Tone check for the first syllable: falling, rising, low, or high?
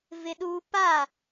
high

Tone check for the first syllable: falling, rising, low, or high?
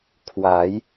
rising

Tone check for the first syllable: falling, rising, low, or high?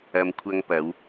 low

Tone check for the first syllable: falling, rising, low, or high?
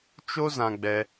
high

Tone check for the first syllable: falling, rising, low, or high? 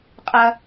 high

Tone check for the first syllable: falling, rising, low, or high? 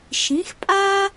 rising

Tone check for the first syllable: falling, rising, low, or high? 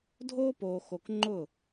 high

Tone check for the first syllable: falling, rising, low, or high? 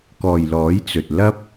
low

